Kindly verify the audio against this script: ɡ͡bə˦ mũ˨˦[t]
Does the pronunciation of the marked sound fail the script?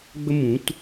no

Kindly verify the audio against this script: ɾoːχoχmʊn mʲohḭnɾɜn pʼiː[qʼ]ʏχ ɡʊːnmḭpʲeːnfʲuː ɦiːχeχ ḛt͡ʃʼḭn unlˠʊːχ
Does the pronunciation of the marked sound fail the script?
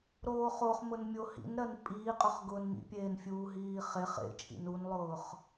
no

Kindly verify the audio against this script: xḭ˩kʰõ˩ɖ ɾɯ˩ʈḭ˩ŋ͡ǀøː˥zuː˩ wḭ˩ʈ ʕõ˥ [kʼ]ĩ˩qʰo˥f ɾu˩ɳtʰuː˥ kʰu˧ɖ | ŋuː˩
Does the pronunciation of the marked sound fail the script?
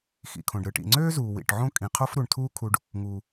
no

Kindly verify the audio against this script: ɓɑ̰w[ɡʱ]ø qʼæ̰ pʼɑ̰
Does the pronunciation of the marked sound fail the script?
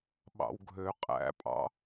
no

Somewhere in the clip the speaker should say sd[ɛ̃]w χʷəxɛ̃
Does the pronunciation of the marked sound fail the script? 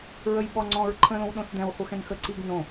no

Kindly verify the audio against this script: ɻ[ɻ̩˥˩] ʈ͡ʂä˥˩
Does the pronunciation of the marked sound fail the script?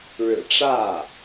yes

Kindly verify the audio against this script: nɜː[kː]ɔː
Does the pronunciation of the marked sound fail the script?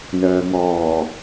yes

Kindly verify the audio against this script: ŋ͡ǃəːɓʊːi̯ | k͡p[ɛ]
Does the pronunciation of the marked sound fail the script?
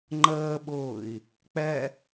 no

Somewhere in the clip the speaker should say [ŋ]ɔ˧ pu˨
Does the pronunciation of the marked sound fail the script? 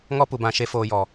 no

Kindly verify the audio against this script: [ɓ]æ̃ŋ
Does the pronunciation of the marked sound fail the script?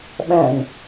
no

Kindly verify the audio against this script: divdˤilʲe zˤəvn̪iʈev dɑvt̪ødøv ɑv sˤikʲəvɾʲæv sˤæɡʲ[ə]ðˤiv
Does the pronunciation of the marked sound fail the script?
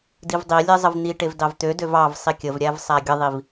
no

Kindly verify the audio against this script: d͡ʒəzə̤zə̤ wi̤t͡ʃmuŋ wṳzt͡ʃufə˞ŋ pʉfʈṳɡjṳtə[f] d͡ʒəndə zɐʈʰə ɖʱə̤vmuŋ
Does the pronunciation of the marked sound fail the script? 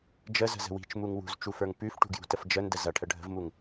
no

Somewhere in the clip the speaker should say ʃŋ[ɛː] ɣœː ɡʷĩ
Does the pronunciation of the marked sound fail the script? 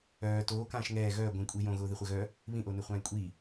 no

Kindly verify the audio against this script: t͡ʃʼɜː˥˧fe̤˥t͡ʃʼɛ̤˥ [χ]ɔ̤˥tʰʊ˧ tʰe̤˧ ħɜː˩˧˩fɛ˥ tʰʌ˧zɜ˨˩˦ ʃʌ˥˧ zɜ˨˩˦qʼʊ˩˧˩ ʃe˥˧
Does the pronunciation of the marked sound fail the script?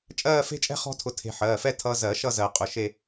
no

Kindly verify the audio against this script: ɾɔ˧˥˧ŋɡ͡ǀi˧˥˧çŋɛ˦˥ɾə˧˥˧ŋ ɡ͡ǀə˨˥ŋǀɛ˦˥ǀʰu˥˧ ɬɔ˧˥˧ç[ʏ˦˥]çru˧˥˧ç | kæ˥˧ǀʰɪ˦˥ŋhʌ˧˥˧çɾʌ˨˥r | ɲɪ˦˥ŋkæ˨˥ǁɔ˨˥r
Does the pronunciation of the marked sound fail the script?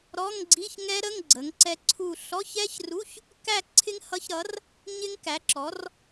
yes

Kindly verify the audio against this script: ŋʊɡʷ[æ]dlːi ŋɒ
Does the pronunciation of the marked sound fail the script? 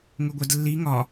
yes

